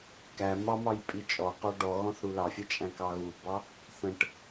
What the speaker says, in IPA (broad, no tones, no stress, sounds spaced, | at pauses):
k æ m ɑ m ɑ j pʼ i t͡ʃʼ ɔ q ɔ ɖ ɔ ɣ ɔ̃ θ ɽ u l ɑ fʲ ɛ t͡ʃʼ æ̃ k ɑ ɣ u b ɑ | θ ə̃ ʈ